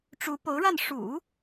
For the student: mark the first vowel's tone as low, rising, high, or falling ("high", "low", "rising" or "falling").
rising